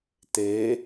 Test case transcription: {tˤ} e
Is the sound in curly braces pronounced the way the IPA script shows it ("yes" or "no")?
no